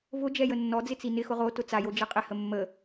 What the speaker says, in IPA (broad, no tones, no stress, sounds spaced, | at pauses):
v ʊ d͡ʒ ɛ j ə nː ɔ d͡z ɪ t͡s i n ɪ x ʊ ʁ o t ʊ t͡s a j o d͡ʒ ɛ qʼ ɪ h ə mː ə